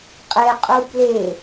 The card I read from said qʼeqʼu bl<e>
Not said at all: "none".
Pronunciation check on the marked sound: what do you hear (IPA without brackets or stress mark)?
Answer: e